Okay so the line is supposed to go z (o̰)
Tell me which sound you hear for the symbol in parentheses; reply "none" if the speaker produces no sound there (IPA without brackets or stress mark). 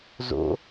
o̰